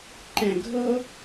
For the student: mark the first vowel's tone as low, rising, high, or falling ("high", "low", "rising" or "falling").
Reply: low